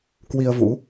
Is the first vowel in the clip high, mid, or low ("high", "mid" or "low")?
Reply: high